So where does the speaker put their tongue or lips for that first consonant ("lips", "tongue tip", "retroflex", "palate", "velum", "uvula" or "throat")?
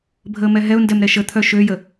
lips